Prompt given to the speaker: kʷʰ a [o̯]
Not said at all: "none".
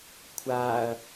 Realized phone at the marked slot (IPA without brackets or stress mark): ɐ̯